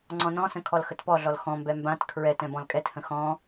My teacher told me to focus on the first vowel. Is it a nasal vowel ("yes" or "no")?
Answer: yes